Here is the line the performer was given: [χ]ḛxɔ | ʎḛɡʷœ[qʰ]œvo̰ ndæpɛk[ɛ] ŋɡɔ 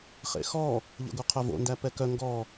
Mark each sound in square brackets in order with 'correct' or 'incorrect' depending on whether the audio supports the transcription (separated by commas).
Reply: correct, correct, incorrect